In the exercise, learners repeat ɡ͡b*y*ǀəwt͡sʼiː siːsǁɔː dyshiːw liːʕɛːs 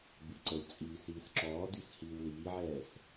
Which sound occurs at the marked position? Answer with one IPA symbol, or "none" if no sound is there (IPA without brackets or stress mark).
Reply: y